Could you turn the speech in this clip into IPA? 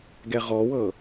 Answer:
ɡɛʁɔwɤ

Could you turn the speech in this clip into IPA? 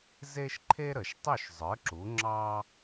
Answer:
ze˥ʃ ǃʰe˥ɾə˩ʃ tˤʏ˥˩ʃzˤə˞˩˥ ǁu˩˥ŋ͡ǁɑ˥

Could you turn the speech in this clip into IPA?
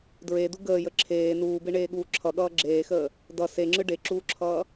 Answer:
dɹedu ɡəːjə ǁʰeː nuːbeɳeːɠuː ǁʰʌɠʌː ɡ͡ǁeːxəː | dʌ seŋ͡ǁɯ ɖeǁuːǁʰʌː

